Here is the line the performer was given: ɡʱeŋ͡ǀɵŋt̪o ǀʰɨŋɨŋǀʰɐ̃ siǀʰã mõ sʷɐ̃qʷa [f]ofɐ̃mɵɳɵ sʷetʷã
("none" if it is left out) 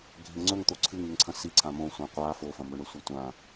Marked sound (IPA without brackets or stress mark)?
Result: f